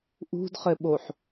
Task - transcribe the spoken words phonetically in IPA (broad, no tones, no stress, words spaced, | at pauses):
ʔṳdχɘɓoħ